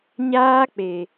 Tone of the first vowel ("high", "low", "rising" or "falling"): high